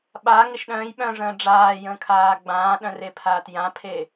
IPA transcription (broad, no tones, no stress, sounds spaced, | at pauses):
ɓ a ŋ ɪ ʃ ɗ œ̃ː j ɓ œ̃ ʐ ə̃ː ɖ͡ʐ aː j ə̃ː kʰ aː ɡ͡b ãː ɗ œ̃ r e pʰ aː t j ã pʰ e